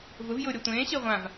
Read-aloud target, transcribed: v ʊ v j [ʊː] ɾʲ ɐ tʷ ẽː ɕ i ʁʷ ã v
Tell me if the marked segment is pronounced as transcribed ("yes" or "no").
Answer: yes